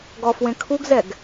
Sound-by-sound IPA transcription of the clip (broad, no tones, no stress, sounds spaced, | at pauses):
ɡ ɔ f w ẽ kʰ u ɡ z ɛ ɡ